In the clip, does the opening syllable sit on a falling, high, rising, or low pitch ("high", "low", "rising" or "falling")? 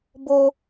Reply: high